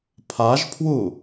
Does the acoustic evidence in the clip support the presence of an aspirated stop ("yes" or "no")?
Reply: yes